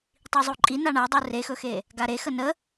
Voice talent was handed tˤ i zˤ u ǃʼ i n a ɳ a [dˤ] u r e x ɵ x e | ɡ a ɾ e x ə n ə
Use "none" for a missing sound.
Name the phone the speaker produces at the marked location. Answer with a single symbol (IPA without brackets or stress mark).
dˤ